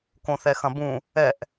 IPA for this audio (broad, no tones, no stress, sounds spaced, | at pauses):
k õ θ ɛ x ɐ̃ b ũ | ɛ ʔ